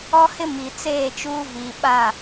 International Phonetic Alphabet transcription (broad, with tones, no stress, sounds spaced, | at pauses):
ɔ˦ h ɪ˦ m i˨ t͡s eː˦˨ t͡ʃ uː˦ v i˨ ɓ a˦˨